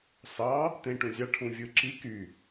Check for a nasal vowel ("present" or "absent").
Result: present